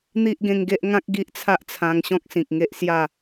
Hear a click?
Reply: no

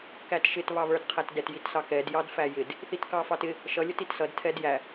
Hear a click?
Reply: no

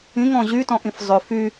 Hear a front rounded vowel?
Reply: yes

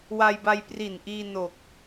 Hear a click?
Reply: no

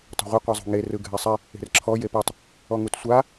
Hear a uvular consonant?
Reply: yes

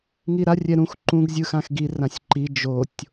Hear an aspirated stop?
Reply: no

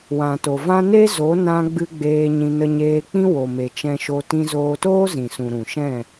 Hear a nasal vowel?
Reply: yes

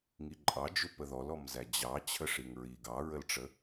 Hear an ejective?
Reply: yes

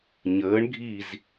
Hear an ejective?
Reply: no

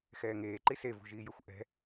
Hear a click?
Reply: yes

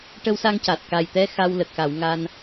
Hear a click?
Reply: no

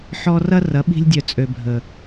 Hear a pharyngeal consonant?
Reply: yes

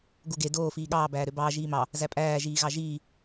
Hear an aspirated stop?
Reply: no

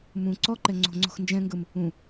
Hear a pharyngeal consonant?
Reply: no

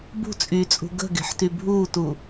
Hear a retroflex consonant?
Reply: no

